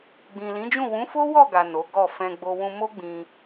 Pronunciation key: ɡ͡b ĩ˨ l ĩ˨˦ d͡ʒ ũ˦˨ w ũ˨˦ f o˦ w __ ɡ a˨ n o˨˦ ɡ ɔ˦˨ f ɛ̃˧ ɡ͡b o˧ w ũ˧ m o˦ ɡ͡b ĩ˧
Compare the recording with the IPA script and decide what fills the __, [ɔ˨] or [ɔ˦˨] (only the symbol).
ɔ˦˨